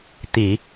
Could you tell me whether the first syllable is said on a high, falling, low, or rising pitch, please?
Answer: low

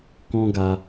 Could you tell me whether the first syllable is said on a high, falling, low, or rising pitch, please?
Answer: high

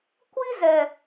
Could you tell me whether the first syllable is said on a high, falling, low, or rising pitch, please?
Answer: high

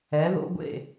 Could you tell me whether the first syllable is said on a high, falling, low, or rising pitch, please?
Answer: rising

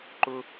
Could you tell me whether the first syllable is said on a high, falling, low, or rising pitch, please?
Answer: high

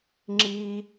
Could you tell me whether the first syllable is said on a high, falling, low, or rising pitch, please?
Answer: high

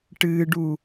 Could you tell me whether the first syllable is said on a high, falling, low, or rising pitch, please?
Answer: low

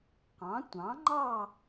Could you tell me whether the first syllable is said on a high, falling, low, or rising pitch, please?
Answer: rising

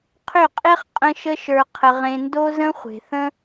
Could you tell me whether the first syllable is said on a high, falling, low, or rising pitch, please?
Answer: falling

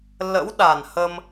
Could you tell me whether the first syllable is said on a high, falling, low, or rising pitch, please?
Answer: rising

